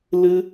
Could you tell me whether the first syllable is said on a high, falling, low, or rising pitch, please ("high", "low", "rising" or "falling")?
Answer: high